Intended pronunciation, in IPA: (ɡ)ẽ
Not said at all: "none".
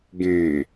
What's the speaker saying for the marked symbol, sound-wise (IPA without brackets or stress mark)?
ɡ